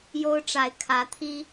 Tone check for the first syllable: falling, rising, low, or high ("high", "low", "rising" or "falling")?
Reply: high